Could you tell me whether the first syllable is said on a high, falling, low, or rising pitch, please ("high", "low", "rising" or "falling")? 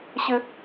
high